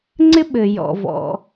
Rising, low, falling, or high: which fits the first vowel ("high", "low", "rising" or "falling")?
high